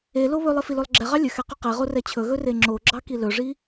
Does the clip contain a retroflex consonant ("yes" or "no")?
yes